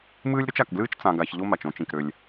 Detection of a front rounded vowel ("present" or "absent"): present